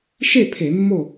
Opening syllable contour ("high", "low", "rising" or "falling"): falling